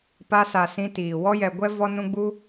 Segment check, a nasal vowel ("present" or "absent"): present